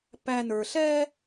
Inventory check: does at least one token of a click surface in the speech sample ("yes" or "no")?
no